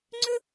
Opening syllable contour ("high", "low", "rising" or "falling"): high